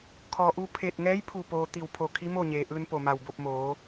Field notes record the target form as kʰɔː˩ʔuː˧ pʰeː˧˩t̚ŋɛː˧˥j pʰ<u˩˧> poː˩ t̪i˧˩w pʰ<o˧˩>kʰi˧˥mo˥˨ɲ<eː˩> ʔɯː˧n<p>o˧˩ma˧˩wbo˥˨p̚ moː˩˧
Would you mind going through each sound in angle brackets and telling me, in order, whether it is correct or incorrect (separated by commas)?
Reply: incorrect, correct, correct, correct